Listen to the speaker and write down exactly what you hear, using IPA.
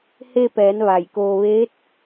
h e˧ p ɛː˩˧ n ʋ a˧˩ j k oː˧ ʋ eː˧˥ t̚

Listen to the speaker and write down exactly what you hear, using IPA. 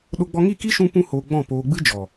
ɗ o˧ ɡ͡b ɔ˧ ŋ i˦˨ k i˦ ʃ ũ˦ p ũ˦ h oː˧ ɡ͡b ɔ̃˦˨ p oː˧ ɡ͡b ɨ˦ d͡ʒ ɔ˨

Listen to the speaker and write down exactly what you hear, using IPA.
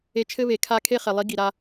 e˧ t͡ʃʰ ɘ˦ β e˨ kʰ a˧ kʰ e˦ χ ɛ˨ lˠ i˨˦ ɡ i˨ ɾ a˧

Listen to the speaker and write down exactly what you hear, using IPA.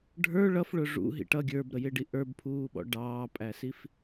ɖʱ ə˞ ɭ ʌ f ɭ ʊ ʐ ṵ ɦ ḭ ʈ ʌ ɡʲ ə˞ b ɾ ə j ɪ ɖ i ʔ ə˞ b pʰ uː ɓ ɔ̰ ɖ ɑː pʼ æ s i f

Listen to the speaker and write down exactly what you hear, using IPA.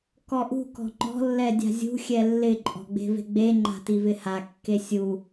k ɔ ʔ ṳ k ɔ̤ ŋ͡ǃ ɔ̤ lː ɛ dʲ a̤ zʲ ṳ xʲ ɛ lː ɪ ǃʼ ɔ̤ ɡ͡b e̤ v e̤ ɡ͡b e ŋ͡ǃ a̤ t i v ɪ h a kː e sʲ u

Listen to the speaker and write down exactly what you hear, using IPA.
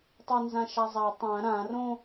tˤ a n z ã ʃ a zˤ a tˤ ã ɾ ã r õ

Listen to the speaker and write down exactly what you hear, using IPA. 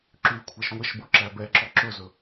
ǁ yː kʷʰ æ ʃ ŋʷ ɛ ʃ b o ǁ æ b ɛ ǁ ɔ ǁ ɵ z ɵ

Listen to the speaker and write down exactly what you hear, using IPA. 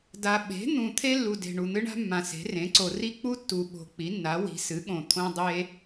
d a˨ ɓ e̤˩˥ n̪ ũ˨ t̪ʰ e˥ lː u˨ d e̤˨ ɳ u˨ n̪ ɨ˥ ɳ a̤˥ mː ã˨ s e̤˩˥ r ẽ˩˥ ǀ o˨ r i˥ k͡p u˥ tː u˨ ɓ o̤˨ k͡p i˩˥ nː a˩˥ w i̤˩˥ s ɨ˩˥ ɠ õ˨ t̪ʰ õ˥ dˤ e˥

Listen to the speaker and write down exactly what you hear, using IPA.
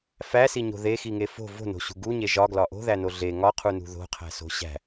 f æ s i ɲ o̤ ð e x i ŋ e f o̤ v o̤ n o̤ ɕ ṳ ɡ u ɲ e ʒ ɒ ɡ l ɒ ʔ o̤ ð æ n o ɮ e ŋ ɒ qʰ u n ṳ ð o̤ qʰ æ̤ s o̤ ɕ æ̤

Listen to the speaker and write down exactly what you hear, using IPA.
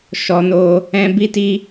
ʃ ɔ˧ n o˧ | ɛ̃˧ b i˧ t i˧

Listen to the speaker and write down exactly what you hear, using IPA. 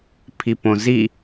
pʰ i p õ z i

